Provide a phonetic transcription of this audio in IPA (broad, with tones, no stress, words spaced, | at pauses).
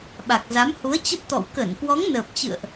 ɓa˨˩k̚za˨˦mhu˨˦ə̯ t͡ɕə˦˥p̚t̪ɔ̰˧˨w kə˧˩n kwɔ˨˦ŋnəː˨˩p̚t͡ɕɨ̰˧˨ə̯ʔ